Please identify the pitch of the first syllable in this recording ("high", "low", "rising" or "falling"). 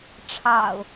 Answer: low